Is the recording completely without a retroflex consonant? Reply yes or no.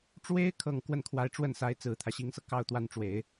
no